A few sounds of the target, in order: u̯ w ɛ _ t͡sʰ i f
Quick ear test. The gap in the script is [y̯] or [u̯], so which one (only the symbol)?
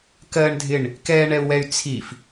y̯